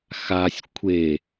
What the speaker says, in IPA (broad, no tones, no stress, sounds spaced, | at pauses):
x a sʲ kʷʰ e